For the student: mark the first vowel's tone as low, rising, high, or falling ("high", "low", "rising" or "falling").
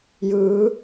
rising